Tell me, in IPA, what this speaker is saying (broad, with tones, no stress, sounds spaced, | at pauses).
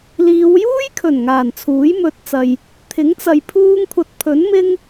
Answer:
l iː˨˧ w j uː˥ j kʰ ɵ˨˩ n ŋ aː˨˩ n t͡sʰ uː˨˥ j m ɵ˨ t̚ t͡s ɐ˨ j | t̪ʰ ɪ˨˥ ŋ t͡s ɐ˨ j pʰ uː˧ ŋ kʷʰ ɐ˨ t̚ pʰ ɵ˨˥ n m ɪ˥ ŋ